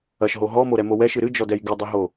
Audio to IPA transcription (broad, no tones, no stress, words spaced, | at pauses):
ɐʃɦo ɦɔmoɾɛmo wɛʃɨ ɾɨd͡ʒɔdɛj ɡɨdˤiɦo